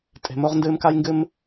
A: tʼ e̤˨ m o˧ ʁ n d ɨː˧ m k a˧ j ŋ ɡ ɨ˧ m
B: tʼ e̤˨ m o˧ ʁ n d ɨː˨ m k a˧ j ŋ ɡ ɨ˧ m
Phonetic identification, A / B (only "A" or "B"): A